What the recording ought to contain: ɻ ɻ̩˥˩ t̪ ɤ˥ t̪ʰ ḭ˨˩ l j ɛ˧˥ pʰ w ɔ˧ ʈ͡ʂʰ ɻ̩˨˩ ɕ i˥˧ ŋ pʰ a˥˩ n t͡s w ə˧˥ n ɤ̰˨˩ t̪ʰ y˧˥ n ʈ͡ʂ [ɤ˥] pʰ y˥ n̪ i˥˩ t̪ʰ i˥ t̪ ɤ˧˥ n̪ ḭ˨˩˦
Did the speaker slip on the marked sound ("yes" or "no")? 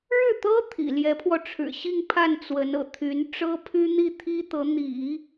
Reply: no